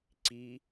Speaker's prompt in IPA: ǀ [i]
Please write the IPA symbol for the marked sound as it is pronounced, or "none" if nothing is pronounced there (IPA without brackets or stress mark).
i